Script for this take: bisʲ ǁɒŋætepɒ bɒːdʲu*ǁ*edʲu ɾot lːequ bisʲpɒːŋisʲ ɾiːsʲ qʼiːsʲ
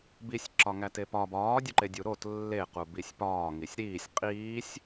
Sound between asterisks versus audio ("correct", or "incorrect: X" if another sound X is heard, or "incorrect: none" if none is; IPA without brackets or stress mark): incorrect: ǃ